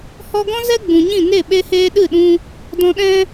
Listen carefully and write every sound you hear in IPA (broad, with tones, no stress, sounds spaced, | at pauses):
h ɔ˧ ɡ ɔ̃˦ z ɛ˦ ɡ͡b ũ˨ ɲ ĩ˦˨ n e˦˨ ɓ e˧ h eː˧ ɗ ɨ˦˨ ɗ ũ˧ | d ɔ̃˧ ɗ ɛ̃˦